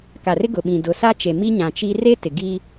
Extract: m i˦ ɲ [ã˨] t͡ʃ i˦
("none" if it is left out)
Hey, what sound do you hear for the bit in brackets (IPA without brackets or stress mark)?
ã˨